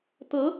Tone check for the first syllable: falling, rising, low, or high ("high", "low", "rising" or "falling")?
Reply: rising